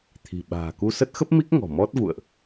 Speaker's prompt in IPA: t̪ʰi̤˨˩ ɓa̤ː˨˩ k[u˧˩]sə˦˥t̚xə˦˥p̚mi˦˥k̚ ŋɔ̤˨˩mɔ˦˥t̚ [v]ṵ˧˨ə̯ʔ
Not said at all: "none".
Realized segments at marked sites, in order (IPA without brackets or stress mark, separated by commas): u˧, v